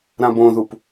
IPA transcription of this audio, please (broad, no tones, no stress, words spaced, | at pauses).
ɾãbõðup